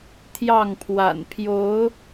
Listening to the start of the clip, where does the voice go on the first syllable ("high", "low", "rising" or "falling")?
falling